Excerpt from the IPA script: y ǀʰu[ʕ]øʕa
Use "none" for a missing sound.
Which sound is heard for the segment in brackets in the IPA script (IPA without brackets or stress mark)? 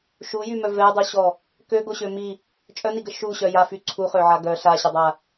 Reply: χ